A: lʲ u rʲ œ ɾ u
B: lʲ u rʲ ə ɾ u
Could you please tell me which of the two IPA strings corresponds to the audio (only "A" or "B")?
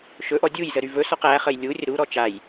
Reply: B